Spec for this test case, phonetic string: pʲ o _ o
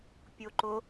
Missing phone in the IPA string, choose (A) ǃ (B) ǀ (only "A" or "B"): A